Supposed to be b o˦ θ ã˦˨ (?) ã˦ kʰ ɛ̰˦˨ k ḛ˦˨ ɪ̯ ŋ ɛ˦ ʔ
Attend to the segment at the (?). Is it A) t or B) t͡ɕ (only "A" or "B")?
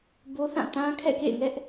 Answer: A